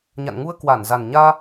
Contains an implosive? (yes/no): no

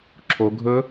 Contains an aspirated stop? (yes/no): yes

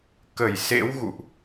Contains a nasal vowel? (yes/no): no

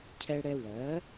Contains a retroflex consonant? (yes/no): yes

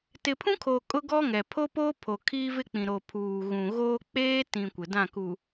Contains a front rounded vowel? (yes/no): no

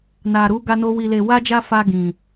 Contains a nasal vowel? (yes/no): yes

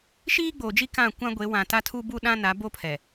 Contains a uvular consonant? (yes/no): no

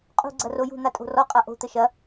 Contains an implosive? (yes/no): no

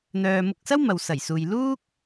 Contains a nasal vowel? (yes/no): no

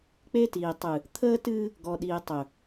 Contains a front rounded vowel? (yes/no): no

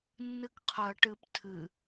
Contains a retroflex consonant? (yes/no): yes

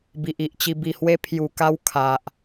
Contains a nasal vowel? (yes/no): no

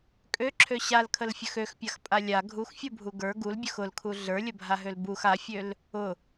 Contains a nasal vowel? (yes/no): no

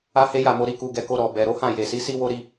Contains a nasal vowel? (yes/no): yes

